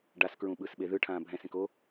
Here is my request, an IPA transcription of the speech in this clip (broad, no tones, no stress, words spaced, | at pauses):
ɖaskɹũɓɯsɓe ðɯʈʰãː bʱɛ̃sẽk o